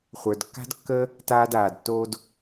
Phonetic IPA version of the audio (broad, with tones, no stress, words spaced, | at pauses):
χʷə˞˧dkːa̤˥dkːəː˥ | taː˥daː˧dtːoː˥d